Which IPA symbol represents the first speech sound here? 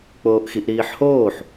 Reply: k͡p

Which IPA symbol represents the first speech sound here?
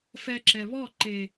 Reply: f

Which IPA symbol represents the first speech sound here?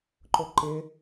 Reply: ǃ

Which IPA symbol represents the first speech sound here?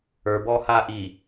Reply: ə˞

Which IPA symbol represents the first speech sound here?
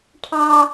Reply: ʈʰ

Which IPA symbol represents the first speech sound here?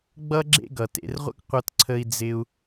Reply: ɡ͡b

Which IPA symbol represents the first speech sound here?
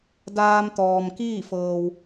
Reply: d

